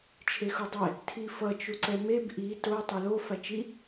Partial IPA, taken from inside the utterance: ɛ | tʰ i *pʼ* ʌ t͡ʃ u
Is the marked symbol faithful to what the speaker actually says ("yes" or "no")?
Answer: no